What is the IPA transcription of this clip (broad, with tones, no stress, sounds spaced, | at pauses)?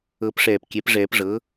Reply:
ɤ˨˩˦ p ʂ ɛː˨˩ p kʲ ɛ˨˩˦ p ʐ ɛː˨˩˦ p ʐ ɤ˩˥